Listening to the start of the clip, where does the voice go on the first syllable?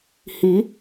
rising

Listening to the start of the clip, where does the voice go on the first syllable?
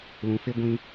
low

